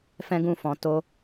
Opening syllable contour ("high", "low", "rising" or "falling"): high